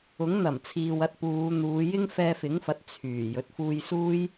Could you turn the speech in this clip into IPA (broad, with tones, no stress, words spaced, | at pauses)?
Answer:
ʊ˨˥ŋn̪ɐ˨˩mt͡sʰiː˨w ɐ˧t̚puː˨˧n̪uː˨˧ jɪ˥ŋfɛː˧fɪ˨˥ŋfɐ˨˥t̚ t͡sʰyː˨˩ jɵ˨˥t̚fuː˧jsuː˥j